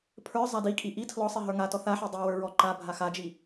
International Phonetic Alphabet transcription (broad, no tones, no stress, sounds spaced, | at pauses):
pʰ ə˞ zˤ a d i kʼ i ʔ i tʰ l ɔ sˤ i ɦ ə˞ ŋ a t ɔ θ a ħ i dˤ i w ə˞ ɹ ɔ ǃ a bʱ a x a d͡ʒ i